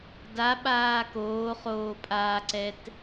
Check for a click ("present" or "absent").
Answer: present